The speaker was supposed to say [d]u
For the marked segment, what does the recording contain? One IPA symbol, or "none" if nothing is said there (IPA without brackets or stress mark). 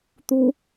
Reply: t̪